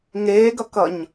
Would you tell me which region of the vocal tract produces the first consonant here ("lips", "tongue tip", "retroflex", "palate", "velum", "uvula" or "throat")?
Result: velum